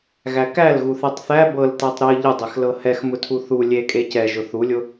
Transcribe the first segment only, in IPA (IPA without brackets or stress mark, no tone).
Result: ɣ